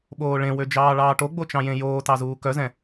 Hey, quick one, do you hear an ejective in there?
no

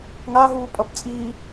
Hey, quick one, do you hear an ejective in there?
yes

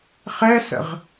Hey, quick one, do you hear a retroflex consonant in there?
no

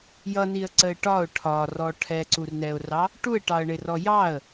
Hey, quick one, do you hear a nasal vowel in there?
no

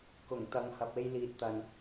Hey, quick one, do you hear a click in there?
no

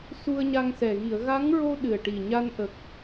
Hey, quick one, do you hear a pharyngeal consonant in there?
no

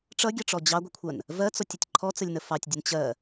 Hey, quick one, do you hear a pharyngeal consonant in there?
no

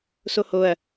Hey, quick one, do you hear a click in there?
no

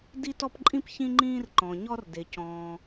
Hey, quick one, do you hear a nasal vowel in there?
yes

